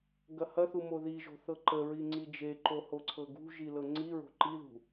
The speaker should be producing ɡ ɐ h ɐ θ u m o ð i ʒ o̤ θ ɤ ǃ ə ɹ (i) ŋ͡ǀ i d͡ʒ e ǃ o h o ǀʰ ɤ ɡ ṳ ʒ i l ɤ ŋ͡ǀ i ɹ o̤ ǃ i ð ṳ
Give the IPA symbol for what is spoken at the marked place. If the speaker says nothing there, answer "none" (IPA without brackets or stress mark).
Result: i